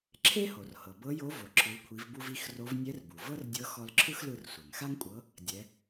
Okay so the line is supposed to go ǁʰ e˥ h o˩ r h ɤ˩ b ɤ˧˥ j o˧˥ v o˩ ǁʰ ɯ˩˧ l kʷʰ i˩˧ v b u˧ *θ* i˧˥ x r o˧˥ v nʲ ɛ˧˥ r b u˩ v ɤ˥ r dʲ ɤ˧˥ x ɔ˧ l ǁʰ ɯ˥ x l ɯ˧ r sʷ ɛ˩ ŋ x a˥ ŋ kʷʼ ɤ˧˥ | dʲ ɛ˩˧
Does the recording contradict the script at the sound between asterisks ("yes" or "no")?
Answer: yes